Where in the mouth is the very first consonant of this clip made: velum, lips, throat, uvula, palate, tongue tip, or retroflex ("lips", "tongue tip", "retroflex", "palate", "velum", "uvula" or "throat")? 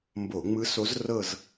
lips